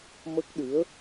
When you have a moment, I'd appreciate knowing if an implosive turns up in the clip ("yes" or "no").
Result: yes